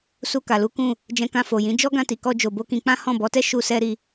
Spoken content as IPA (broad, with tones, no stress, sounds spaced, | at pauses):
s u˧ k a˨ l u˨˦ k ũ˦˨ | d͡ʒ ɛ̃˧ k ã˧ f o˨ j ĩ˨˦ d͡ʒ ɔ˦ ɡ ã˧ t i˨ k ɔ˧ d͡ʒ o˨ b o˧ k ĩ˧ k͡p ã˦ h ɔ̃˦˨ b ɔ˨˦ t ɛ˦ ʃ u˧ s ɛ˧ ɾ i˧